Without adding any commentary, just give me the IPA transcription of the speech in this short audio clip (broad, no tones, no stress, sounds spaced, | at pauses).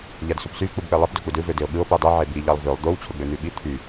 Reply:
ʎ æ d s u p s y v k͡p u b k͡p e lˠ i p d o k͡p u d ɯ v ø d e o̯ ɠ ɯ o̯ p i dˤ i ʕ e b i ʎ ɑ lˠ v ø lˠ d̪ o w t͡ɕʰ o ɡ͡b ø n̪ y ɓ i t̪ʰ y